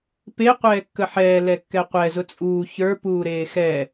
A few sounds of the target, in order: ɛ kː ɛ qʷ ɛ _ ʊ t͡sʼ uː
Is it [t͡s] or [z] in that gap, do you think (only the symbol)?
z